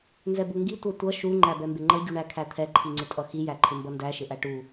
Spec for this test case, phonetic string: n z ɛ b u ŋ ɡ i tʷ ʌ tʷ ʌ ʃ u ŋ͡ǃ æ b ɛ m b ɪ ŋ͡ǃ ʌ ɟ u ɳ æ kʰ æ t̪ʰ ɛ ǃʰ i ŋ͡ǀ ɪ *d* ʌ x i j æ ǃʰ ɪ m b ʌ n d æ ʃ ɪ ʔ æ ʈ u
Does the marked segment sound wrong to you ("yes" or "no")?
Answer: yes